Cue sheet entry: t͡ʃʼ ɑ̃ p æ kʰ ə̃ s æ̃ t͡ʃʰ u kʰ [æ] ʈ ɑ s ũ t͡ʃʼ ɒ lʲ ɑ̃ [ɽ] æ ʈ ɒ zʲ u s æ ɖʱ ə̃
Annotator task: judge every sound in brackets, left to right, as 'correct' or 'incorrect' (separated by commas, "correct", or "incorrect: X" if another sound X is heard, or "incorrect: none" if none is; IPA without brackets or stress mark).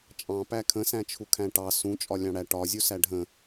incorrect: æ̃, correct